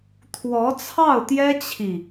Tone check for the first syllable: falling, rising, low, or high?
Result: rising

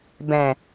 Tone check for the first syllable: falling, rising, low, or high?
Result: low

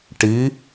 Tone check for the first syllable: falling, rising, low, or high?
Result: rising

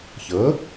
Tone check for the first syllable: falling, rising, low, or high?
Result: rising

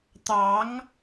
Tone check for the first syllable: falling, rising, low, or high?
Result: rising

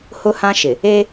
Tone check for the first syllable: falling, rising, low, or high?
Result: high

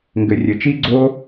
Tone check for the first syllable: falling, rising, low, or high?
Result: low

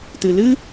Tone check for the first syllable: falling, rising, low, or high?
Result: low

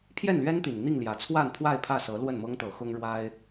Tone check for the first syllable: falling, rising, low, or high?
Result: falling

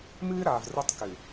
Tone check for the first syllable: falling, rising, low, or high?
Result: high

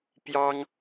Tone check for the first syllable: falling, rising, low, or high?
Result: high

